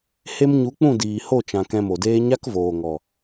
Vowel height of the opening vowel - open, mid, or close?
mid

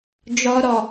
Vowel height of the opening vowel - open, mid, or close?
mid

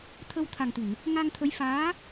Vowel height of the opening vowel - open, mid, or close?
mid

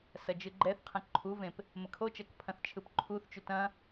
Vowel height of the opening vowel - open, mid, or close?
open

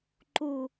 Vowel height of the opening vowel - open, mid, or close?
close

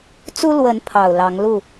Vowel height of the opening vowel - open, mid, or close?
close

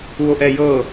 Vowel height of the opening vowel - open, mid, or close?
close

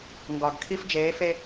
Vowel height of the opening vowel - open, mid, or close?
open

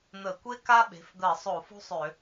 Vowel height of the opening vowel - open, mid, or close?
mid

